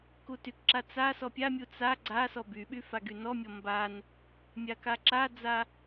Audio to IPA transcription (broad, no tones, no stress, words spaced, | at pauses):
kutykǁa t͡sasɔ pʲamʲu t͡sa ɡ͡ǀasɔ byɓy faɡynɔmʲɔ mban | mʲakaǁad͡za